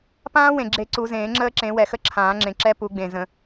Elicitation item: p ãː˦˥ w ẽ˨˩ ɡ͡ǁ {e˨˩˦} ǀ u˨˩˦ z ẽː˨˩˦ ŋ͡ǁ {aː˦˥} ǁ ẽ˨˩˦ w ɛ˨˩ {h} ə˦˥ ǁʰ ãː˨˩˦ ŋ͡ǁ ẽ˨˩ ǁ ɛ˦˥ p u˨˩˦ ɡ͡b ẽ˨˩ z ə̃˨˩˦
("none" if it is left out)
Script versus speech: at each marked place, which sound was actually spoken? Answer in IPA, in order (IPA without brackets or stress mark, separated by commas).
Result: e˨˩˦, əː˦˥, x